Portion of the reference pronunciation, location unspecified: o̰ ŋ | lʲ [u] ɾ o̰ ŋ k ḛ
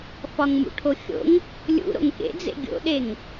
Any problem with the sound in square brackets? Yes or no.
yes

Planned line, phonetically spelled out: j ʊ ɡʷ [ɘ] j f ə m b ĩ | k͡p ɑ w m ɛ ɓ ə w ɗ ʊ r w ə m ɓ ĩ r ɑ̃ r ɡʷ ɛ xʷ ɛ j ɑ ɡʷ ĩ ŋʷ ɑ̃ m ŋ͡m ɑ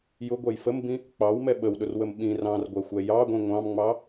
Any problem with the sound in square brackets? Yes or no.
yes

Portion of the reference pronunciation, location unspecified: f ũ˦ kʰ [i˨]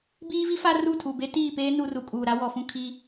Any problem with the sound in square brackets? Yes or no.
yes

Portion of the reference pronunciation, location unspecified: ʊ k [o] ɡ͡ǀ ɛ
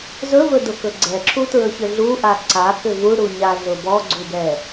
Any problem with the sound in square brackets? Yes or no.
yes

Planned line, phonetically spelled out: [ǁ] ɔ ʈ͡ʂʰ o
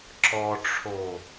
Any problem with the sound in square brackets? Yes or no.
no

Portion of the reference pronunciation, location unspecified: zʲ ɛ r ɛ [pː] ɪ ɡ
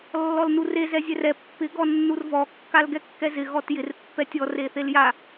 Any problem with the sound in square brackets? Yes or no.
no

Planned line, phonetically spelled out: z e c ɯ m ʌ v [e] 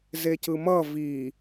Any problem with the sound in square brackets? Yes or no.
yes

